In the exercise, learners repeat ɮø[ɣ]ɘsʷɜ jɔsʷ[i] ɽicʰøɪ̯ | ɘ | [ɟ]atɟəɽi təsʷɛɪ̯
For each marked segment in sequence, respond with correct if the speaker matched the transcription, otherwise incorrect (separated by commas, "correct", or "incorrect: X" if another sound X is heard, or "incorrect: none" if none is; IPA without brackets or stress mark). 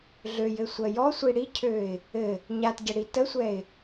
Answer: incorrect: j, correct, incorrect: ɲ